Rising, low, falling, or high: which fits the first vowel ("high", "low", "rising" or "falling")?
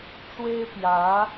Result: high